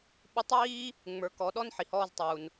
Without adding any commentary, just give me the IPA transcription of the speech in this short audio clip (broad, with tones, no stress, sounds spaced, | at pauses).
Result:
ɓ u˧˥ tˤ w iː˥ | ŋ͡m ə˞˩˧ k ɔ˩˧ ɗ ɔ˧ n ħ i˩ h ɔː˧ z tˤ uː˩ n